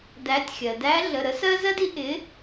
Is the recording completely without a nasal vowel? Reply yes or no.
yes